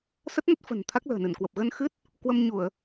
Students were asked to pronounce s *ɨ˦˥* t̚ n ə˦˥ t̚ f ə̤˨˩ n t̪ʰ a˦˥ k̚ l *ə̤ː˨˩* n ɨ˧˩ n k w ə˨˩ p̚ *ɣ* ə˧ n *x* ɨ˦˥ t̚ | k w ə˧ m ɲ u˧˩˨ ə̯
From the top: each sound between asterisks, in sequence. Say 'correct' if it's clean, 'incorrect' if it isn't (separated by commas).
incorrect, correct, correct, correct